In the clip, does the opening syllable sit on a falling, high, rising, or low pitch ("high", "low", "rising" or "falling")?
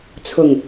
low